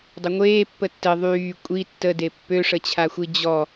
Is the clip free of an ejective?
no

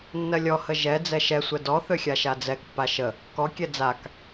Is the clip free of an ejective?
yes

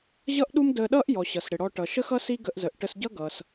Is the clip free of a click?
yes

